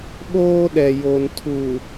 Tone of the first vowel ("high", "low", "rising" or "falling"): high